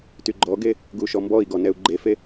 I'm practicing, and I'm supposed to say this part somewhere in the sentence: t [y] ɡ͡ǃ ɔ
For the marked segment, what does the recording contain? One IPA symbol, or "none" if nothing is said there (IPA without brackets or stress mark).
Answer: y